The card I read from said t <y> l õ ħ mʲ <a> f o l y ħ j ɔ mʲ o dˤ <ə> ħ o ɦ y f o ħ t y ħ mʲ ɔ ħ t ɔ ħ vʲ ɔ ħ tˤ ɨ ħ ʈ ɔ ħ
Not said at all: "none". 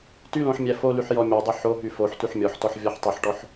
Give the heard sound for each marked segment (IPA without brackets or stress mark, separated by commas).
y, æ, ə